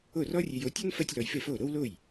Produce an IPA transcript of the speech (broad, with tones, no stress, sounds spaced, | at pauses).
o˥˩ r ɔ˥ rʲ e˧ j o˩˥ tʲ ɔ˥ n f ɜ˥ tʲ l ɔ˧ j f e˥˩ f o˥˩ ɾ o˥ w l o˥˩ j